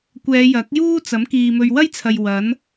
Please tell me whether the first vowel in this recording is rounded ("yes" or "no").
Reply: no